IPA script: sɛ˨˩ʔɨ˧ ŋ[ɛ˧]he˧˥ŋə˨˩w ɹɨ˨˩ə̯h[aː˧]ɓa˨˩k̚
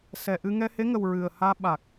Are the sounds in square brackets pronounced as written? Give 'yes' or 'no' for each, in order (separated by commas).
yes, yes